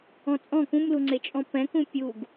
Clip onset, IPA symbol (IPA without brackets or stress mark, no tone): ɔ̃